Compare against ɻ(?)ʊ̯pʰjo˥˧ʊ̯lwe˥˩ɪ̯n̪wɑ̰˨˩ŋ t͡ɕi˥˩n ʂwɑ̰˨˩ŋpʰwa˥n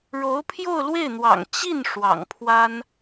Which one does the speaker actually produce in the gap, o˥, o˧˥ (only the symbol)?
o˧˥